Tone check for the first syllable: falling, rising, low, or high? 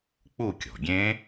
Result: falling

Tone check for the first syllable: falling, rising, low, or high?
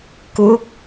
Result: rising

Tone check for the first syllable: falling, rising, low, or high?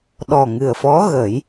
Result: low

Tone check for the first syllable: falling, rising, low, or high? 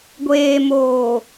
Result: low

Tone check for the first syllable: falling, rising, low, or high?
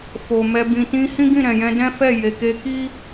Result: low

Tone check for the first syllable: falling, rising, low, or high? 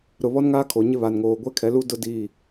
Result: low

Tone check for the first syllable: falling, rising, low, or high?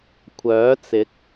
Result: rising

